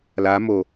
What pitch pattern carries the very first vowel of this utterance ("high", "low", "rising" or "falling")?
rising